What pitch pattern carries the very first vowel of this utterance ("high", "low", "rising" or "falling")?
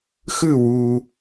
falling